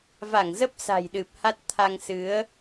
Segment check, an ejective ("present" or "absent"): absent